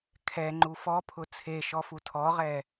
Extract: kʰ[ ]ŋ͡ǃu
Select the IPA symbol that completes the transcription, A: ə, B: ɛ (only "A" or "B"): B